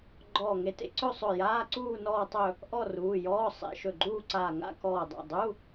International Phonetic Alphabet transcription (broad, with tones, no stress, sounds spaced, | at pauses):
ɡ͡ǃ ɔː˧˩ ŋ e˧˩ t ḛ˥˧ ǀ ɵ˥˧ sˤ ɵ˧˩ j aː˧˥˧ ǀ uː˥˧ n ɔː˥˧ tˤ ɵ˥˧ | ʔ ɔ˥˧ r uː˩˧˩ j ɔː˧˥˧ sˤ ḛ˧˥˧ ʃ ɵ˧˩ ɡ͡ǃ uː˥˧ ǀ aː˧˩ ŋ a̰˥˧ k ɔː˧˩ dˤ a̰˩˧˩ dˤ u˧˥˧